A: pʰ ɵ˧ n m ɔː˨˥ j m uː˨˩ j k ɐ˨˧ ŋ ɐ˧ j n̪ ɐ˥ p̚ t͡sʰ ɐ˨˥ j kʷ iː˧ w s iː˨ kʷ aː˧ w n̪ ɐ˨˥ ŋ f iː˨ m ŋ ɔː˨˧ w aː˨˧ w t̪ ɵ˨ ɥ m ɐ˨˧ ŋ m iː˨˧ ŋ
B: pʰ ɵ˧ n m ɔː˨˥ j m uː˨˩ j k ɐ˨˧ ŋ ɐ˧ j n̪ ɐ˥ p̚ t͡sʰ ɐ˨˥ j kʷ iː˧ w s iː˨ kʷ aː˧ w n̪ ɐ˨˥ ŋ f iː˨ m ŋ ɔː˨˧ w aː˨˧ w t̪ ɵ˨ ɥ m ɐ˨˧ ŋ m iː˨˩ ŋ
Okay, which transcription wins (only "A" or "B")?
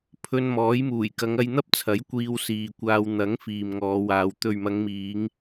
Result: A